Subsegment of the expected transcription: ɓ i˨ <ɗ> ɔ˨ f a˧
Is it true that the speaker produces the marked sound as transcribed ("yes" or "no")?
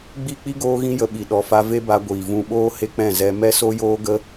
yes